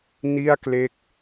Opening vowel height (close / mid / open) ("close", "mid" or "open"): close